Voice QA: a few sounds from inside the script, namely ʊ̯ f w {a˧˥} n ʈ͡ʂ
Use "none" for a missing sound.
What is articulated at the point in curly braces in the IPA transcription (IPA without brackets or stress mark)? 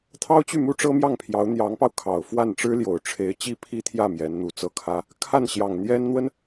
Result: a˥˩